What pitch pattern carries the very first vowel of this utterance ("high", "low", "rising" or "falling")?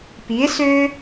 rising